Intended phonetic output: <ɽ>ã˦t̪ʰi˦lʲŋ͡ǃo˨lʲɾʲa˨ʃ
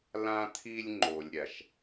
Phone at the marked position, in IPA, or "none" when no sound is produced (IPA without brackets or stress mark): l